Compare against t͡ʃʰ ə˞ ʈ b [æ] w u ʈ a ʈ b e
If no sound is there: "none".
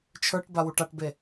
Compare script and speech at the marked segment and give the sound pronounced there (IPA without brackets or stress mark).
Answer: a